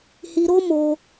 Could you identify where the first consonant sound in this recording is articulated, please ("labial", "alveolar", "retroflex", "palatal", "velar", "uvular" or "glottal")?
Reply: glottal